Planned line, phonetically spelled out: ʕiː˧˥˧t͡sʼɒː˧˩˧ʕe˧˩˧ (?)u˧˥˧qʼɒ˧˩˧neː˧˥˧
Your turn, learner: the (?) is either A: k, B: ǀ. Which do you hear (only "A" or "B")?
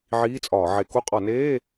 A